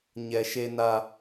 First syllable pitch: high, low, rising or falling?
low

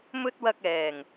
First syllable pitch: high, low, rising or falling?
high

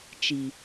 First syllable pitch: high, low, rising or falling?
low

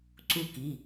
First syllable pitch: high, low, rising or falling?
falling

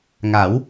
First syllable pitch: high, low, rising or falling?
rising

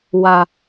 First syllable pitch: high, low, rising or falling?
low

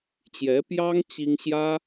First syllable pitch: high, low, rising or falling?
rising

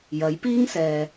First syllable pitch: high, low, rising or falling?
rising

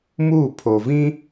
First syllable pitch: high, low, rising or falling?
falling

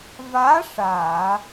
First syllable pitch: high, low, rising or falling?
rising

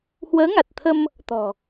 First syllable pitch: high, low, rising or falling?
rising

